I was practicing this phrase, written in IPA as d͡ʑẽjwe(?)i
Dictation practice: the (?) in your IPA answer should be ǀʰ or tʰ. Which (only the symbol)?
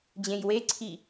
ǀʰ